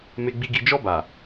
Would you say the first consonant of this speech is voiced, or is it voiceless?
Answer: voiced